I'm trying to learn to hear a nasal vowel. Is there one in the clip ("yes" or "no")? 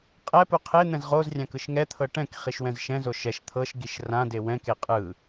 yes